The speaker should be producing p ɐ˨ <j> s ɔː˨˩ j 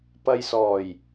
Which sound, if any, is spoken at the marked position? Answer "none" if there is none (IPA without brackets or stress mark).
j